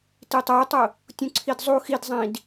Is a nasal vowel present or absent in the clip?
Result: present